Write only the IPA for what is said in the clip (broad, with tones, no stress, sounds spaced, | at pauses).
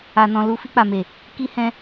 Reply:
a˨ n ɔ̃˨ l u˨˦ f i˧ k͡p a˨ m e˨ | k i˧ h ɛ̃˧